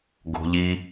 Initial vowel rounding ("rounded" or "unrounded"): rounded